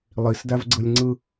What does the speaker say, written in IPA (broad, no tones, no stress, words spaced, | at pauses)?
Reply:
lˠisdævɡ͡ǀɯlʲŋ͡ǀɯ